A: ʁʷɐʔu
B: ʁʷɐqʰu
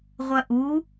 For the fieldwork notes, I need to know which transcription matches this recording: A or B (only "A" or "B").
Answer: A